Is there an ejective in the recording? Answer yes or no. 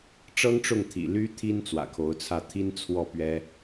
no